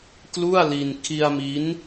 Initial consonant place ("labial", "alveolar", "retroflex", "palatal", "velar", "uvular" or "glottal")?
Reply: velar